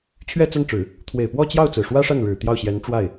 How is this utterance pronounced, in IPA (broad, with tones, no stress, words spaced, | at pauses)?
t͡ɕʰɥɛ˥˧t͡sa˥˩nʈ͡ʂɻ̩˨˩˦ | t̪ʰwe˨˩ɪ̯pwɔ˥˧t͡ɕjɑ˥˩ʊ̯ t͡sɹ̩˨˩ʂwä˥ʂa˥˩nɻɻ̩˨˩ t̪jɑ˥˩ʊ̯ ɕjɛ˧˥nʈ͡ʂwa˥˩ɪ̯